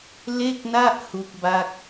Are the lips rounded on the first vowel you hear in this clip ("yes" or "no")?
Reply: no